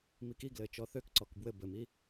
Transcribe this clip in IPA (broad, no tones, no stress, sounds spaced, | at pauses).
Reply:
m i k i ɡ l ɘ t͡ʃ ɔ θ ø k ǀ ɔ k b w ɘ b ɘ m i